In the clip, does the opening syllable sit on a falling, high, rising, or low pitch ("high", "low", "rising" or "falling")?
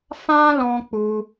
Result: high